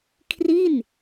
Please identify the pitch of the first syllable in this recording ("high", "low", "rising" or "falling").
falling